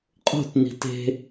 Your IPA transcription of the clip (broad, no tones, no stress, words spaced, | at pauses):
qʼo̤tni̤ te̤